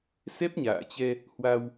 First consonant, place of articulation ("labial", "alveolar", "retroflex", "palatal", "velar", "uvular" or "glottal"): alveolar